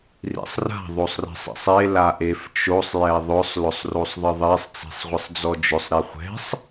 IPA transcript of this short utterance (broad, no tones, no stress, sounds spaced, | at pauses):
r ḭ sˤ r a̤ ðˤ o sˤ r ɛ̤ sˤ ḭ sˤ e l a ʔ e f t͡ʃ o sˤ j ɛ ðˤ ʊ sˤ l ʊ sˤ r o sˤ ðˤ ɪ ðˤ e sˤ t͡s e̤ sˤ ʁʷ ɪ sˤ d͡z ɔ d͡ʒ ʊ sˤ ɾ i χʷ ɛ̤ sˤ